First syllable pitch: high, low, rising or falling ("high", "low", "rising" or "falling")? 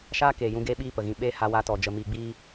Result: high